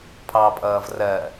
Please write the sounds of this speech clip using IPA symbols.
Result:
pʰ ɑ pʼ ʌː v r ɜ

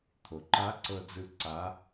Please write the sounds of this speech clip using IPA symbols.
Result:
t̪ʰ o˩ ǃ a˧˥ ǀ ɤ˧ d͡z ɯ˧ ǀ a˧˥

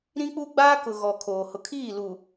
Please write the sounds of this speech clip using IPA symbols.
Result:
ɾ ĩ˦ k͡p u˦ ɡ͡b aː˦ k ʊ˨ ɣ ɔ˨ kʰ oː˨ h ʊ˨ kʰ iː˦˨ l u˨

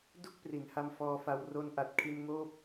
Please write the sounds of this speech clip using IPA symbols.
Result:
d u˥˩ k̚ p r i˩˦ n h a˧ m f ɔː˧ f a˧ w r o˧ n ʔ a˨˩ t̚ kʰ i˧ n ŋ oː˥˩ p̚

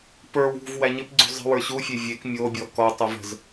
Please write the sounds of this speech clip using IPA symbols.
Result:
p ə˞ w ṳ v w æ ɲ ɪ p ɡ͡ǀ ṳ zˤ ə̤ w ə˞ ɕ u fʲ e vʲ e k mʲ o bʲ ɔ k ɔ tˤ u v ə̤ z

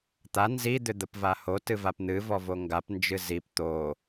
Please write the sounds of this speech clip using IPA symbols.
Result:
t̪ a n z i d̪ ʏ d̪ ə p v a h o t ɨ v a p n̪ ɨ v ɔ v o ŋ ɡ a p n d͡ʒ ɨ z i p t̪ o

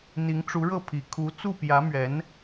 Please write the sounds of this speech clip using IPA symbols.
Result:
n̪ i˧˥ ŋ ʈ͡ʂ u˧˥ ɻ ɤ˥˩ pʰ i˨˩ kʰ u˧˥ t͡s u˥˩ p j ä˧˥ m ɥ ɛ˧˥ n

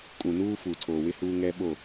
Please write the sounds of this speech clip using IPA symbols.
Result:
kʼ ũ˨ n uː˦ f u˨ tʰ oː˨ w ɪ˦ h uː˦ ŋ ɛ˦ ɓ o˦˨

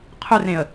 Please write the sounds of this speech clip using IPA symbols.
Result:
qʰ ɵ r ẽ ə̯

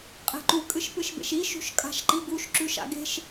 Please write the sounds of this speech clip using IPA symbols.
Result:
qʼ e̤ ǃ u kʼ ɨ ʃ p ɨ ʃ b ḛ ʃ i ʃ ṳ ʃ kʼ a̤ ʃ ǃ i ɡ u ʃ ǁ ʉ ʃ a̰ ɡ e̤ ʃ

